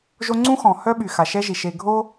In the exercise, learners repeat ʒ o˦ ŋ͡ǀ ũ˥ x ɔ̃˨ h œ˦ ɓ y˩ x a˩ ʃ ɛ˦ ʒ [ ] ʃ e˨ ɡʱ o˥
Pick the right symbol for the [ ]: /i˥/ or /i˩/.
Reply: i˩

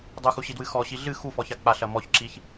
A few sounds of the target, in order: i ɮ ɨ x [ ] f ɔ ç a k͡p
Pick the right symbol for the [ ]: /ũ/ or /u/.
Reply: u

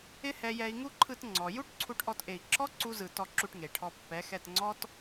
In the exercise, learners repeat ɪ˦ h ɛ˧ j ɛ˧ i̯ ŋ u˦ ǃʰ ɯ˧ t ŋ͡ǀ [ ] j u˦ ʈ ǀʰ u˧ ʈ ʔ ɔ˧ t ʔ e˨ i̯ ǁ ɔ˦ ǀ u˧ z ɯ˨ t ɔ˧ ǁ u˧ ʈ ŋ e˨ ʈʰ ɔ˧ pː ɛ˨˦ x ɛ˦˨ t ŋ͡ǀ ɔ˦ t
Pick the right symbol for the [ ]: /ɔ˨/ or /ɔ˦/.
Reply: ɔ˨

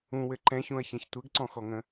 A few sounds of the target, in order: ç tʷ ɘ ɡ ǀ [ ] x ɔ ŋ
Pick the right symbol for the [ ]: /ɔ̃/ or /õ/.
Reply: ɔ̃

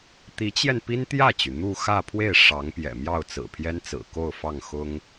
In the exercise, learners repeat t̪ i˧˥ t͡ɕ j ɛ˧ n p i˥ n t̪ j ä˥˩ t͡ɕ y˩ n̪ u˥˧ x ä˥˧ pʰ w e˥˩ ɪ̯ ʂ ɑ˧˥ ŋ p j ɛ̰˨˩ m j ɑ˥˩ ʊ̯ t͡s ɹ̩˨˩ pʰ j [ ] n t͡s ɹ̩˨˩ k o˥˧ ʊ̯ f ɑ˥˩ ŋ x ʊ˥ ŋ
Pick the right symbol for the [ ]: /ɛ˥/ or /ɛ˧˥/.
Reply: ɛ˥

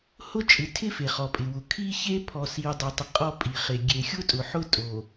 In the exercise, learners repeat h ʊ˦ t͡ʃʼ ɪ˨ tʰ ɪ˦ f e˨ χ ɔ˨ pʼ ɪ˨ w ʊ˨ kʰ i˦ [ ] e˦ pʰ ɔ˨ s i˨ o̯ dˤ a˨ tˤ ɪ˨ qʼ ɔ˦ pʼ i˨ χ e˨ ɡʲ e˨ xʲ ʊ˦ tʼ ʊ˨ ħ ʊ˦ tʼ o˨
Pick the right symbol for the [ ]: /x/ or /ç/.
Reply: ç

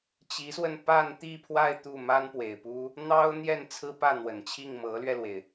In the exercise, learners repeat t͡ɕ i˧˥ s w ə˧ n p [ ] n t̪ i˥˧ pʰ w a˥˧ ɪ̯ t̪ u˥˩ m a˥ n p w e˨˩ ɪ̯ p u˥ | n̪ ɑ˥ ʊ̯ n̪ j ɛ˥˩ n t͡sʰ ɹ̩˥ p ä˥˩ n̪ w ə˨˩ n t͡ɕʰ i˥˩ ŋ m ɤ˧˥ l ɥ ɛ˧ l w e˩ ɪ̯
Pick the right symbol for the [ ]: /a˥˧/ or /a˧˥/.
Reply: a˥˧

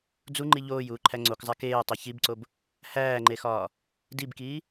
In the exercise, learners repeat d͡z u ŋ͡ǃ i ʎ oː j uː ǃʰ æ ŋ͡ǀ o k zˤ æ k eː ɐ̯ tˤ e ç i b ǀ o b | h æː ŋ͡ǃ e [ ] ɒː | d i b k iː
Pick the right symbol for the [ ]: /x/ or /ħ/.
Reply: x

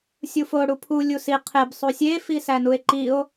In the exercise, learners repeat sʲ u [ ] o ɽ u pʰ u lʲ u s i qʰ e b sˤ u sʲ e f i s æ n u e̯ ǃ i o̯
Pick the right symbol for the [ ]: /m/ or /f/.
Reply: f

